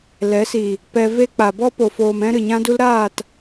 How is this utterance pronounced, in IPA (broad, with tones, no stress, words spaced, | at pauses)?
lɛ˨˦ si˨ | pɛ˧ve˦ k͡pa˨bɔ˦ po˨foː˨mɛ̃˧ ɾɨ˨ɲã˧du˧lɾaː˦˨t